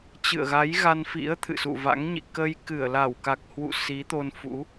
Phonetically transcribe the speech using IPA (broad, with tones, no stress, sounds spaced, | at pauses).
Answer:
t͡ɕ ɨ̰˧˨ ə̯ ɣ a˨˦ j ɣ a˧ n f ḭ˧˥ ə̯ t̪ʰ ɨ̰˧˨ s ṵ˧˨ v a̰˧˥ ŋ ɲ ḭ˧˨ k ə˧ j k ɨ˧˩ ə̯ l a˧˩ w k a˨˩ k̚ h w ṵ˧˨ s i˨˦ t̪ o˧ n f ṵ˧˥